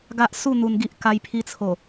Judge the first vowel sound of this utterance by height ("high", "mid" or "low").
low